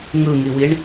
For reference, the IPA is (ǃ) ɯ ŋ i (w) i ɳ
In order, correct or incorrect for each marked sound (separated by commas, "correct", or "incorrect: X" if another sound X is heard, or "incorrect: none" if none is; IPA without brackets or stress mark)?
incorrect: ŋ, correct